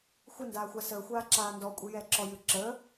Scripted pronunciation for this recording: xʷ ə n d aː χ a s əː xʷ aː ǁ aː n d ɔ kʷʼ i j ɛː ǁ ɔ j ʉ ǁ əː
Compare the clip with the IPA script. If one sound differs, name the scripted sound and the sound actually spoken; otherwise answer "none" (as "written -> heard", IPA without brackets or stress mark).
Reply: χ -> xʷ